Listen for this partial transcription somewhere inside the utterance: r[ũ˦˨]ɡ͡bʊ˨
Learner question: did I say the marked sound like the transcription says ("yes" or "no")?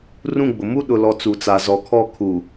yes